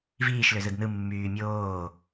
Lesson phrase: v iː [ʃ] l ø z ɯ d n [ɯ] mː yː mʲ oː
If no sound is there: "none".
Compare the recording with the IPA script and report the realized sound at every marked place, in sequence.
ʃ, ɯ

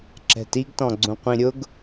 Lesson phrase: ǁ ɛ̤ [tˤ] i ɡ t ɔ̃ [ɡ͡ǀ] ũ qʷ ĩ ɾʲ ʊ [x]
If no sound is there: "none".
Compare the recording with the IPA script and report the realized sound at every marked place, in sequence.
t, ɡ͡ǀ, ɡ

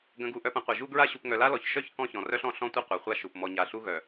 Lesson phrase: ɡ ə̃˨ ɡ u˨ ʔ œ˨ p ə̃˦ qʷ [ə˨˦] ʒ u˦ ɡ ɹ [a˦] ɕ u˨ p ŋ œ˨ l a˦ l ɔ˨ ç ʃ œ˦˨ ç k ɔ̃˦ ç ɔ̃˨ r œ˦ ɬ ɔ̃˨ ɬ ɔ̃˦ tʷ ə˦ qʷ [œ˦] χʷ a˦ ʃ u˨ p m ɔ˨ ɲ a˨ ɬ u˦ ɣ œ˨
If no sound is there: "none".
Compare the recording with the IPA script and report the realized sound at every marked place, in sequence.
ə˨, a˦, œ˨

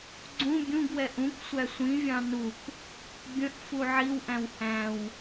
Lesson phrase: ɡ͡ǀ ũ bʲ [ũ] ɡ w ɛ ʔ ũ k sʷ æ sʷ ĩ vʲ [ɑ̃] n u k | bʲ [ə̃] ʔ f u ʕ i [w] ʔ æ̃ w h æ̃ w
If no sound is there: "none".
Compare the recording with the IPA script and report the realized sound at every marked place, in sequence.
ũ, ɑ̃, ə̃, w

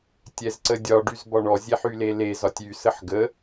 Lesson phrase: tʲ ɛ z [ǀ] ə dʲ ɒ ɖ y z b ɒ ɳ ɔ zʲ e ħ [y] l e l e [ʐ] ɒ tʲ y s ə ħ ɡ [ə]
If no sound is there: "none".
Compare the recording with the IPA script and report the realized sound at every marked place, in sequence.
ǀ, y, z, ə

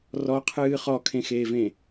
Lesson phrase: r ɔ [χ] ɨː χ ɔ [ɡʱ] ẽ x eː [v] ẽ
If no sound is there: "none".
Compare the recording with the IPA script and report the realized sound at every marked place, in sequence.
qʰ, kʰ, v

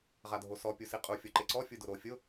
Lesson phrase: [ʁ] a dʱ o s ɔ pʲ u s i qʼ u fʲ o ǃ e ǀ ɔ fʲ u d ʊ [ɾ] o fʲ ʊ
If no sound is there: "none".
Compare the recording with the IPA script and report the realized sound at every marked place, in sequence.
ʁ, ɾ

